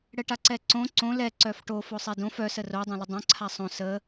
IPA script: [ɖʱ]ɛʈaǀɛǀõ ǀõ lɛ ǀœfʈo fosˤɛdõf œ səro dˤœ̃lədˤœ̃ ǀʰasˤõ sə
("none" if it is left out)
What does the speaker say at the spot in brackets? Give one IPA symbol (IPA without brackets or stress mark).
ɽ